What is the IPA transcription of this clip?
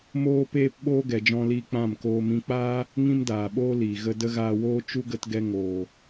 m oː˦ p eː˦ p ɓ oː˦ ɡ ɛ˨ d͡ʒ ɔ̃˧ l iː˧ k͡p ã˦˨ m k oː˧ m ĩ˧ k͡p aː˦ | ŋ ĩ˦ m d aː˨ ɓ oː˦ l iː˨ ɣ ə˧ d ə˦ ɣ aː˧ w oː˦ t͡ʃ u˦ ɡ ə˧ t ɡ ɛ˧ ŋ oː˨

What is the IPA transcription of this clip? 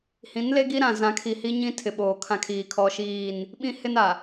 h ĩ˨˦ n l e˦ ɡ i˦ ɾ ã˨ z ã˨˦ kʰ i˨ h i˦ ɲ ĩ˦ tʰ ɪ˨ ɓ oː˨ kʰ ã˦ kʰ iː˨ kʰ ɔ˦ ʃ iː˦˨ n | ɓ ĩ˦ h ɪ˦ n a˨

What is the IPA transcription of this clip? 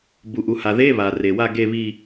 b u˩ ʔ u˩ h a˩ ð e˧˥˧ β a˩ r e˩ w a˥˨ ɡ e˥˨ β i˥˨

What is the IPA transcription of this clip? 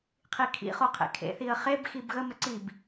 qʰ i kʰ ḭ χ o qʰ ḛ kʰ ḛ θ i ə̯ χ e b x i b ɣ ə m ə ǀ i b

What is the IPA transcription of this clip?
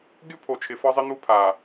ɡʲ u˦ pʰ o˨ t͡ʃʰ ɪ˨ f ɒ˦ zˤ ɪ˦ n̪ u˦ pʰ a˨

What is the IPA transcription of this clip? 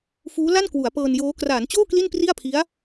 f uː˦˥ l a˥˩ n k w u˩˦ a̯ p ɤː˧ n j oː˦˥ k r aː˩˦ n t͡ɕ oː˥˩ k l i˥˩ n p r i˥˩ a̯ pʰ i˦˥ a̯

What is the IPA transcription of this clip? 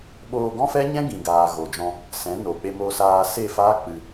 ɓ oː˧ ɡ ɔ̃˦ f ɛ˦ ɲ ɛ̃˦ ɡ ĩ˨ ɡ aː˨ ɣ o˨ d͡ʒ ɔ̃˧ | s ɛ̃˨˦ n o˨ k͡p e˧ m o˧ s aː˧ s e˦˨ f aː˦ k͡p ɨ˧

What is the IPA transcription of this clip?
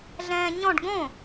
ɮ ɛ̃ː ɲ ɔ̃ ɖ ɡ õ

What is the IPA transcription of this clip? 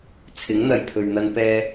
t͡sʰ ɪ˨˥ ŋ n̪ ɐ˨ j pʰ ɵ˨ ɥ n̪ ɐ˧ n p ɛː˧

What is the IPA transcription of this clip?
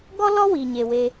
ɡ ɔ˥ l ɔ˥ w i˩ ɲ e˩ w e˨

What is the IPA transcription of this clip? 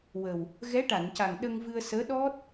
w ə˨˩ w | ɣ ɛ˧˥ ʈ a˨˩˨ n c a˨˩ ŋ ɗ ə˧ ŋ v ɨ˧ ə̯ s əː˧˥ ɗ ɔ˦˥ t̚

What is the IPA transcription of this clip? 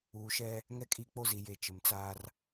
uː˨ ʃ ɛ˦ | ŋ ɛ˦ kʼ i˦˨ k͡p o˦ z i˨ j e˨ t͡ʃ ɪ˨ m t͡s aː˦ r

